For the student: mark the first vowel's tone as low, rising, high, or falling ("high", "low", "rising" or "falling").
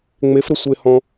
rising